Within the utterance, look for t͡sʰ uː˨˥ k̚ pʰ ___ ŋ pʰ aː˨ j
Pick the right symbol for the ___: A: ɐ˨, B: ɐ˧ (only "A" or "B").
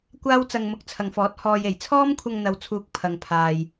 A